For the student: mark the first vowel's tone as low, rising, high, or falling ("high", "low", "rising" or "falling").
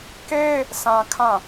high